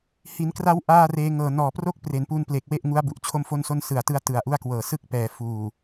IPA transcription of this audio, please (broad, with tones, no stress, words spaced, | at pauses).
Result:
hi˩˦nkra˦˥w ʔaː˥˩reː˧ŋɤː˨˩ nɔː˨˩ pro˥˩k̚pre˩˦npu˧n ple˨˩k̚we˥˩ʔŋu˦˥a̯ bu˨˩ʔt͡ɕʰo˥˩mfo˥˩nso˥˩n sɯ˨˩a̯tɯ˦˥a̯ tɯ˨˩a̯ʔu˥˩a̯kwɤː˨˩ sɯ˥˩k̚pɛː˩˦ fuː˨˩